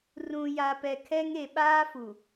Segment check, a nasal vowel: present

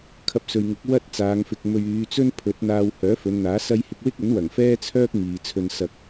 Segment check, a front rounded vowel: present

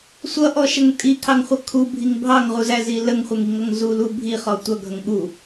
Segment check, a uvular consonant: present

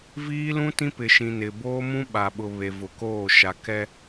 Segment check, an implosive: present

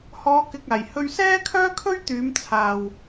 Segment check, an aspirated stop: present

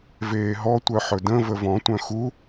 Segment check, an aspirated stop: absent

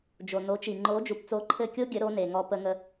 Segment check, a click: present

